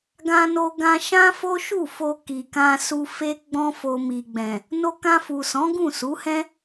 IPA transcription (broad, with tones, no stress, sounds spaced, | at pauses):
ɡ ã˧ n o˧ ɡ ã˧ ʃ ã˦ f o˦ ʃ u˦˨ f o˧ k i˨ k ã˧ s u˧ f e˦ ɡ͡b ɔ̃˦ f o˧ m i˨ ɡ͡b ɛ̃˨ | n o˧ k ã˧ f u˨ s ɔ̃˨˦ ɡ ũ˦˨ s u˨˦ h ɛ̃˦